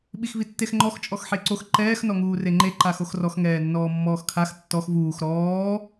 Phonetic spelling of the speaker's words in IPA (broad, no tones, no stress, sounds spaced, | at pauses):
ɓ i x v i tː e x ŋ͡ǃ ɔ x t͡ʃʼ ɔ x ħ e ǀ o x ǃ ɛː x n ɔ ŋ uː r e ŋ͡ǃ e ǃ a x o x r ɔ x ŋ ɛː nː ɔː mː ɔː x kʰ a x tː ɔ x v uː x ɾ ɔː